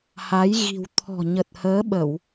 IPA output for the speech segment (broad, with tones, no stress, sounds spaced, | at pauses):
h a˨˦ j ɣ i̤˨˩ w t̪ʰ ɔ̤˨˩ ɲ ə˨˩ t̚ h əː˨˦ ɓ ə˧˩˨ w